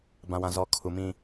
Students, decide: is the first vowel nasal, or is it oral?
nasal